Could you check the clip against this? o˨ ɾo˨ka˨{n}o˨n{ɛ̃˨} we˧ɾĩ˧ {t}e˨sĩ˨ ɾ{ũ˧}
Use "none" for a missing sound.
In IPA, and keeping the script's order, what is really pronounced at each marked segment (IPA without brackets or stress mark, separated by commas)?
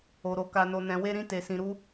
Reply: n, ɛ̃˨, t, u˧